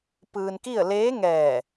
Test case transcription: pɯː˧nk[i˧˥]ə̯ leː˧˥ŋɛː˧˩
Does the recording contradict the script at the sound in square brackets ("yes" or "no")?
yes